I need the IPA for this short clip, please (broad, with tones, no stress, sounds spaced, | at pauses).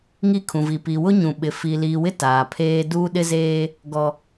ŋ i˦ kʰ ũ˨ v i˨ p i˨ w ʊ˦ ɲ ũ˨ ɓ ɪ˨ f i˨ l iː˨ w ɪ˦ t aː˨ pʰ eː˦ d uː˦ ɗ ɪ˦ z eː˦ | ɡ ɔ˨